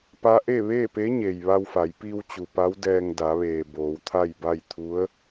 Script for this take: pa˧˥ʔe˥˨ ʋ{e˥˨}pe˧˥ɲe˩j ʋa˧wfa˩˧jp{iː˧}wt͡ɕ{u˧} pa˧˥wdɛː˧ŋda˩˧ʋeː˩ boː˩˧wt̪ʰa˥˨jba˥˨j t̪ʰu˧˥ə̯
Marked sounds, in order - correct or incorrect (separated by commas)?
incorrect, correct, incorrect